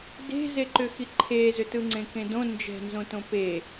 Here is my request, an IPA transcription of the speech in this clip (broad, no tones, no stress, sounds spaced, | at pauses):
d e̤ z e ǃ ʏ x i ǃʰ e z ʏ t ɯ ŋ͡ǀ ẽ k ẽ d õ n d͡ʒ ɛ̤ n z õ t õ p e